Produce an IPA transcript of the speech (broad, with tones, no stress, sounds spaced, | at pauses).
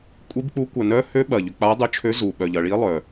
kʷʼ i˧˥ b k͡p u˧˥ kʷ ɐ˨˩ n œ˧˥ h ø˧˥ ɓ ɐ˨˩ ʎ ʏ˨˩ k͡p a˧˥ dˤ ʏ˧˥ t͡ʃʰ ø˧˥ z u˨˩ ɓ œ˨˩ ʎ ɐ˨˩ ɭ i˧˥ lˠ œ˨˩